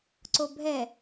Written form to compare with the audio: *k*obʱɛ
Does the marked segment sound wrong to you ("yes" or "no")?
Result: yes